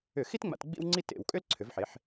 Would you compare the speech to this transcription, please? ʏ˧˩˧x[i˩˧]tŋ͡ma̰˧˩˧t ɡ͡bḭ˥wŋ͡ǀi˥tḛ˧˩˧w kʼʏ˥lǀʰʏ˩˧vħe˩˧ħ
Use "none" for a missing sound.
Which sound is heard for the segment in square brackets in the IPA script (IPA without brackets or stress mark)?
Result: i˥